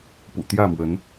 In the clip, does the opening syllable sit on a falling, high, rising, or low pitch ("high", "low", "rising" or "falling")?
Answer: low